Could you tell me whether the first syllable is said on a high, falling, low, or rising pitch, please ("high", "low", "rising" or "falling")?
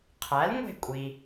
rising